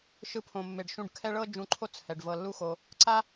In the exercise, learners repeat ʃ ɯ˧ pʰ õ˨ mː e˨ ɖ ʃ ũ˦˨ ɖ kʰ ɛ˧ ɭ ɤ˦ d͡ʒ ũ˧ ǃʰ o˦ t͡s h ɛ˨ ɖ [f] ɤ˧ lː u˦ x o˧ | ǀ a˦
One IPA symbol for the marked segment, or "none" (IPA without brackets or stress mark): v